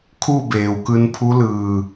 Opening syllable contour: falling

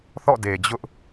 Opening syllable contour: falling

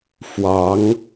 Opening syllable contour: rising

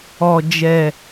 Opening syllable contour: low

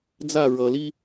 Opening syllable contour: falling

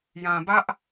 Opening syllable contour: low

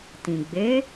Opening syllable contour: low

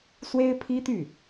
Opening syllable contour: high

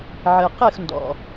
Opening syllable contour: low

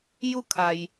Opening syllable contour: falling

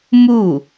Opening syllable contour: falling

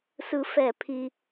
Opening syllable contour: high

